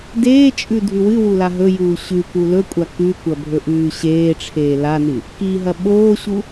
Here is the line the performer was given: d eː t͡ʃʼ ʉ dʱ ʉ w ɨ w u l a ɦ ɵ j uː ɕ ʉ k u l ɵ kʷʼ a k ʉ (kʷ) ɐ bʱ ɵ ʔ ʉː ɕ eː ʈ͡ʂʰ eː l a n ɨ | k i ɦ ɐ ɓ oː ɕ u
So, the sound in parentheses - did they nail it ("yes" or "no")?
yes